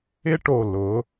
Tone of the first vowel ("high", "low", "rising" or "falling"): high